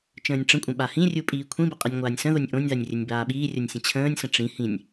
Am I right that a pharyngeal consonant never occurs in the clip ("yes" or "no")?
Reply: yes